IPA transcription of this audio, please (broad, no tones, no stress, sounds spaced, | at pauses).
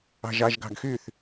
ɑ̤ ʒ ɑ ʒ ɡ ɑ̤ ɡ x y θ